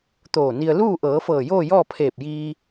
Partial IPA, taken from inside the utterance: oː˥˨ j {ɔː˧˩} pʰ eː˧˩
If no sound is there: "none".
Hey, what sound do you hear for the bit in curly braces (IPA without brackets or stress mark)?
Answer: ɔː˥˨